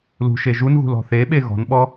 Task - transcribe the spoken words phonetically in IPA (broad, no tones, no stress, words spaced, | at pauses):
lṳʃe ʒunɣṳl ɔ̤θeɓe ɣɔ̤nɓɔ